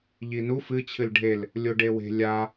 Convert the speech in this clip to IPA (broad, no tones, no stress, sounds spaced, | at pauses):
ʎ i n u f ɨ t͡ɕʰ ɨ l ɖʱ e l | lʲ o ɖ e w e̤ lʲ a